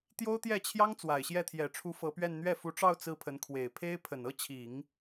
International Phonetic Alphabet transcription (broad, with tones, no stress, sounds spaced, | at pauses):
t̪ j o˥ ʊ̯ t̪ j ɛ˥˩ t͡ɕʰ j ɑ˥ ŋ t͡s w a˨˩ ɪ̯ ɕ j ɛ˥˩ t̪ʰ j ɛ˨˩ ʈ͡ʂʰ u˧˥ f ɤ˧˥ p ɥ ɛ˥˧ n n̪ ɥ ɛ˥˩ f u˧˥ ʈ͡ʂ ɑ˥˧ ʊ̯ t͡s ɹ̩˥˩ pʰ ə˧˥ n kʰ w e˨˩ ɪ̯ pʰ e˥ ɪ̯ pʰ ə˨˩ n ɤ˥ t͡ɕʰ i˨˩˦ ŋ